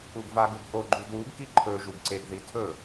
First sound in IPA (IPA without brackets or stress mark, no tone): u